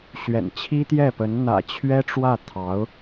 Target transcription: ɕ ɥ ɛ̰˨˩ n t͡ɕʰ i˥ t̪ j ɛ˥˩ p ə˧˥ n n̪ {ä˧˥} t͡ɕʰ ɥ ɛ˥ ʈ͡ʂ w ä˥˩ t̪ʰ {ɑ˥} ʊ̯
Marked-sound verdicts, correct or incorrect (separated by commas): incorrect, incorrect